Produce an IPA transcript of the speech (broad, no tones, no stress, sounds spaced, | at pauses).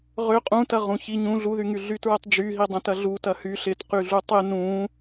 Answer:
ʁ ø qʼ ũ t ɐ ʁ ũ ç i ɲ ũ ɮ u ð y ŋ y ɮ y t ɹ ɛ tˤ d͡ʒ y ɦ i dˤ ɐ̃ t ɐ ɮ u t ɐ h y ɬ ɪ t q y ɮ u tˤ ɪ n ũ